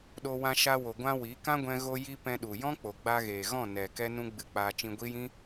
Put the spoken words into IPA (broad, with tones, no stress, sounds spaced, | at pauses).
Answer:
ɗ o˧ w ã˧ ʃ a˧ w o˨ ɡʷ ã˧ w i˨˦ k ã˦ ɡʷ ɛ̃˧ ɣ o˧ j i˧ p ɛ̃˧ ɗ u˨ j ɔ̃˦ k͡p o˨ ɡ͡b a˧ ɣ eː˨ ɣ ɔ̃˦˨ n ɛ˨ k ɛ˦ n ũ˦ ɡ͡b ɨ˧ k͡p aː˧ t͡ʃ ĩ˧ ɡʷ i˦ j ĩ˦